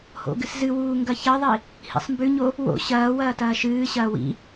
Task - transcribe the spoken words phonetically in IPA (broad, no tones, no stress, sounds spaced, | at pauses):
h o̰ ɡ ɨ s z ɨ w uː ŋ ɡ ɐ ç ɐ ðˤ i | h ḭ sˤ m b ʉ ɲ o | w o̰ ɕ ɐː w ɐː t ɐː ʃ ɨː ɕ ɐː w ḭ